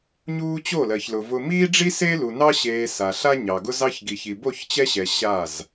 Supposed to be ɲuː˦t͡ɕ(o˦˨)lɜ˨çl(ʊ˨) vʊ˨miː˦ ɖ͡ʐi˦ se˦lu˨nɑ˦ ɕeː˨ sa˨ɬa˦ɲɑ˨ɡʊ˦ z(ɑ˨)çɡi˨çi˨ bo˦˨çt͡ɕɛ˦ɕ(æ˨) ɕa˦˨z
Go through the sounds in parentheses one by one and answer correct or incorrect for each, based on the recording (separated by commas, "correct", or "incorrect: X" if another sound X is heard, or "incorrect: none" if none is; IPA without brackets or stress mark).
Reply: correct, correct, incorrect: ɑ˦, incorrect: ɛ˨